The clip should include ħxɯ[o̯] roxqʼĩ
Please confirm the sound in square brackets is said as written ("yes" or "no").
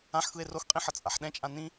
no